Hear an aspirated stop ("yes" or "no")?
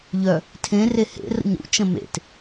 yes